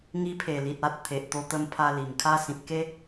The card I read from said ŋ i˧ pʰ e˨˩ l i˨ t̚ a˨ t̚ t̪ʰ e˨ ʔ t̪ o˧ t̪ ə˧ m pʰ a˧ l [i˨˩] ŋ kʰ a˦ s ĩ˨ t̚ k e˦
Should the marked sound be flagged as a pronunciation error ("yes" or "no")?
no